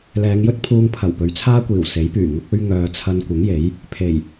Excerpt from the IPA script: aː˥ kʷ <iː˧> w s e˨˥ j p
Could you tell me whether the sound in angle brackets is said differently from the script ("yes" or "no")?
yes